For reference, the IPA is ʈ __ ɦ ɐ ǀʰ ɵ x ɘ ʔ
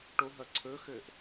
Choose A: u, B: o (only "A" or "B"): B